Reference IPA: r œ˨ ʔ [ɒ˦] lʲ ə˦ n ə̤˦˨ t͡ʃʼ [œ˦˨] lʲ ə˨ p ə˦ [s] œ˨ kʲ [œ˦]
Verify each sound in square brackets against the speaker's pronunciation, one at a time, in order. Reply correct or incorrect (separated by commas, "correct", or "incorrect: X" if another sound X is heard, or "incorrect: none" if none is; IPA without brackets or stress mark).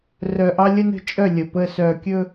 incorrect: ɑ˦, correct, correct, incorrect: ɵ˦